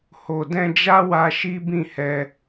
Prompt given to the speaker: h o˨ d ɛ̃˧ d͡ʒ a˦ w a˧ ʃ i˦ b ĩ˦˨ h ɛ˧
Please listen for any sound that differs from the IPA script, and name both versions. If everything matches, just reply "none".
none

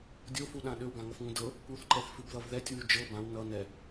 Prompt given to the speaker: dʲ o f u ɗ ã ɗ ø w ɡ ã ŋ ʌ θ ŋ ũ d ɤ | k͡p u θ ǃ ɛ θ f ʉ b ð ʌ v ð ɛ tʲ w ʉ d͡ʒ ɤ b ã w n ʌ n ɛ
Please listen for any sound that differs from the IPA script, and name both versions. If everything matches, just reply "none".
none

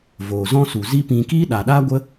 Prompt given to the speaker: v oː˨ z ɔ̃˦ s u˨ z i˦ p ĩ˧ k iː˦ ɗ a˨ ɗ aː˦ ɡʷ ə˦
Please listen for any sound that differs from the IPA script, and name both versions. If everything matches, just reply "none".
none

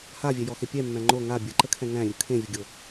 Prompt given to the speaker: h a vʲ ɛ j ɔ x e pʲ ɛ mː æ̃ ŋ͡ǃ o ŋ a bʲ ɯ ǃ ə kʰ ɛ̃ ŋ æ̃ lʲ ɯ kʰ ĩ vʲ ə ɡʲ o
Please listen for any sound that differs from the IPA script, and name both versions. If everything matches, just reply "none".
ĩ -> ẽ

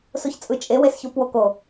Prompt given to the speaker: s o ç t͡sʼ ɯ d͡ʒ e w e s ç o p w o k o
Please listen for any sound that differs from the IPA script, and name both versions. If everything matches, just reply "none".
d͡ʒ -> t͡ʃʼ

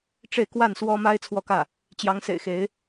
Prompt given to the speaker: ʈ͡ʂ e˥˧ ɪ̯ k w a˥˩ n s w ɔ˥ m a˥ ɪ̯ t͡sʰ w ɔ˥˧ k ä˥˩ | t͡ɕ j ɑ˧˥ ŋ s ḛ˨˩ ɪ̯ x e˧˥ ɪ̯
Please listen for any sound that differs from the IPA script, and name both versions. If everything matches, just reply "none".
none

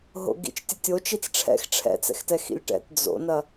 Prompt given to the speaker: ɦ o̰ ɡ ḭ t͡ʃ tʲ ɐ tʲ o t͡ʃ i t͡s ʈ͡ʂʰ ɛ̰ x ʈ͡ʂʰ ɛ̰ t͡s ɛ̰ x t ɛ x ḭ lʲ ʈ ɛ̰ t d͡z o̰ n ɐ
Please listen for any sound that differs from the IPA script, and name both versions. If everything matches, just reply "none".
none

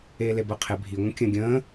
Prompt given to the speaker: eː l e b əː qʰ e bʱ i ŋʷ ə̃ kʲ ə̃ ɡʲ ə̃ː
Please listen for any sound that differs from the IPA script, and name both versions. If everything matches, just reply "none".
none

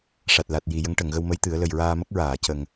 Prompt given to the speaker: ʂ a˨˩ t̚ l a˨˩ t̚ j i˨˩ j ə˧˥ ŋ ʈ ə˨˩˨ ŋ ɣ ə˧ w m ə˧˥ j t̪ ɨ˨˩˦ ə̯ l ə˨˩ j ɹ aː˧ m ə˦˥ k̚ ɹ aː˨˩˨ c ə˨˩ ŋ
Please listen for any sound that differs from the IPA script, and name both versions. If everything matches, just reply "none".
none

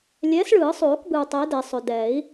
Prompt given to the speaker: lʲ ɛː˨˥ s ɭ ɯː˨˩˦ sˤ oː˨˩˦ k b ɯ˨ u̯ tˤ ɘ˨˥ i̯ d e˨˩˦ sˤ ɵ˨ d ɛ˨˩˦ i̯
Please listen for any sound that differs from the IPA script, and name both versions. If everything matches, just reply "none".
none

